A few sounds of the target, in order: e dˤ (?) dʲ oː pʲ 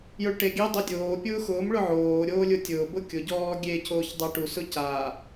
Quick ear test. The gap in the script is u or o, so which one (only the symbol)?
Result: o